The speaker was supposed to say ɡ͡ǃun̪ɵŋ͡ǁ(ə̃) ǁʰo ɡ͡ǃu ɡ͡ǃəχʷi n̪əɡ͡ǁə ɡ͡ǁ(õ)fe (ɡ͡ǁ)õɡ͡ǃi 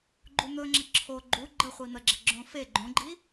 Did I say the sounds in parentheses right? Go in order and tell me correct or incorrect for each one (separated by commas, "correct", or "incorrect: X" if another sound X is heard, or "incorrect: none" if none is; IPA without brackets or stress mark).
incorrect: ə, correct, incorrect: ɡ͡ǃ